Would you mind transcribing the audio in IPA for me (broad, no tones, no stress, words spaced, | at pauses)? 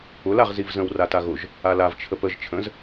ʊl aʁzivzə̃w rataɣʊʒ | alav t͡ʃʰəpəʒ t͡ʃʰə̃z